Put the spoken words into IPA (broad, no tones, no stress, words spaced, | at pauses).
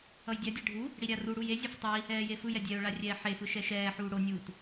ʌjdʲadʲɛ ɖʱu | ɽiɾʲaruɽuj ezʲof tˤi | ɛːjefɯjɛ dʲɛʊ̯ɭa rʲɛːħefɯ ʃɛʃɛːħuː ɽonʲuːt